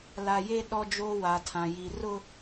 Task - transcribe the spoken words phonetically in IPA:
l a˦ j e˦ ɗ ɔ˦ d͡ʒ oː˦ w a˨ tʰ ã˨ j i˨ r ʊ˦

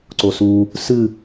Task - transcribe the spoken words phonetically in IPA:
ǀ o s u | s ɨ

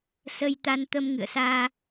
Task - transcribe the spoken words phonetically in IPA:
s ə˧ j t̪ a˧ n t̪ ə˧ m ŋ ɨ̰˧˨ ə̯ s aː˧

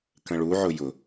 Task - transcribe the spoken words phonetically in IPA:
k ə̃ ɭ u ʕ ʊ j ʊ

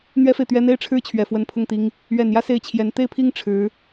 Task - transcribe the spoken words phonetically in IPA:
n̪ ɥ ɛ˥ f e˨ ɪ̯ t̪ ɥ ɛ˥ n̪ e˥ ɪ̯ ʈ͡ʂʰ ɻ̩˥ t͡ɕʰ ɥ ɛ˨˩ f w ə˧˥ n pʰ ʊ˥˩ ŋ t̪ i˥ ŋ | ɥ ɛ˨˩ n j ä˥˧ s e˥˩ ɪ̯ t͡ɕʰ j ɛ˧˥ n t̪ e˥˧ ɪ̯ pʰ i˥˩ ŋ ʈ͡ʂʰ ɻ̩˧˥

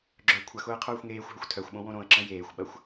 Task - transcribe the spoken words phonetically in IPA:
ɡ͡ǁ œ kʷʰ ɐ x ʊː ə̯ qʰ œː xʷ ŋ eː xʷ ɦ ʊ xʷ tʰ œ xʷ ɓ õ w õ ɾ õ ə̯ ǁ ə̃ j eː xʷ ɓ ɐ xʷ

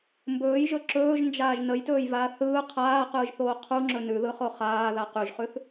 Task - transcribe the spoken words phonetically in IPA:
m b ɵː j ʒ ɵ ǁ ɵː ʒ n d͡ʒ aː ʒ n ə j t ɵː j v aː θ ɯː qʰ aː q ɯː ʒ θ oː qʰ u ŋ͡ǁ ɵ n ʉ ð ɯ χ o χ aː ð a q ʉ ʒ χ ʉ θ

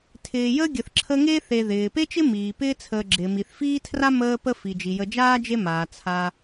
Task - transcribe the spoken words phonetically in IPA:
tʰ ɪː˨ j əː˥ ɡʲ ə˨ θ ǁʰ ə˦ ŋ e˥ θ e˨ ð ɪː˩ p e˥ t͡ʃ ɪ˥ m iː˩ p ɪː˦ t͡sʰ əː˨ ɡ͡ǁ ɪː˩ m i˩ θ f iː˥ tʰ r a˥ m əː˦ p ə˦ f i˩ d͡ʒ i˩ j ə˨ d͡ʒ aː˥ d͡ʒ e˦ m aː˩ t͡sʰ a˨

